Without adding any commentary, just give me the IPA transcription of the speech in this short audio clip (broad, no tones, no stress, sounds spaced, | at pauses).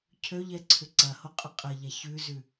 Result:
cʰ ø ʎ ɛ ǀʰ ʏ ǀ ɐ h o qʼ ʏ qʼ ɐ ʎ a ç ʉ z ʉ